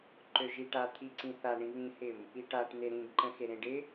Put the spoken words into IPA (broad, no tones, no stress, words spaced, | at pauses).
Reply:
ǃøʒiʈat̪ʰi ǀĩθaɳĩ βĩhɪm | iʈaʈn̪e ɾĩɡǃə̃ xeɾẽɖɪ